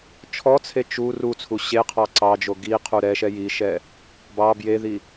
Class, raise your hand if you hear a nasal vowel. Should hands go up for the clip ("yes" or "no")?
no